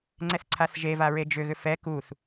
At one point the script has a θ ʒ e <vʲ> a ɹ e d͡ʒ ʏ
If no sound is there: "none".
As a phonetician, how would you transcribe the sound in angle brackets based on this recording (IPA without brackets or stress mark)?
v